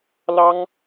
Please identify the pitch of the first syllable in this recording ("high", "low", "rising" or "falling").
high